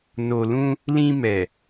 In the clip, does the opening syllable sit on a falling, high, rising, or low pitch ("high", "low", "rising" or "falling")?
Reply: low